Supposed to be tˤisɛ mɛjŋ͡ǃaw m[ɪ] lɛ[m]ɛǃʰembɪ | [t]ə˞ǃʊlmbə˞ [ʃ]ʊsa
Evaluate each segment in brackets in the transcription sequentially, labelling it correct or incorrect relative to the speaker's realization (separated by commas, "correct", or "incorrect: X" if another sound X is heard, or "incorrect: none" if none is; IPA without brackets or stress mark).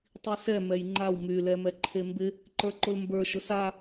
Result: incorrect: y, correct, incorrect: ǃ, correct